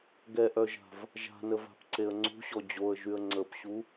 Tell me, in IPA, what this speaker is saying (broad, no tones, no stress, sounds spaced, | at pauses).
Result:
ɡ ɛ ʔ œ ʒ a̤ v | ʒ a̤ n ə v a̤ p ǀ e ə̯ ŋ͡ǀ ṳ ɕ ɔ d͡ʑ o ə̯ ʒ y ə̯ ŋ͡ǀ ə p ɕ u